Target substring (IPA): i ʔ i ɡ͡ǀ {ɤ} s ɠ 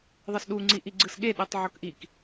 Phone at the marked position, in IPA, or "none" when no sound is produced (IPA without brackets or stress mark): ɯ